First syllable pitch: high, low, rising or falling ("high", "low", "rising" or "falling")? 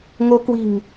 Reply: rising